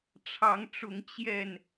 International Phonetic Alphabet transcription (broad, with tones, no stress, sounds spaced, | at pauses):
ʈ͡ʂʰ ɑ˨˦ ŋ ʈ͡ʂ ʊ˨˦ ŋ t͡ɕ j ɛ˥˨ n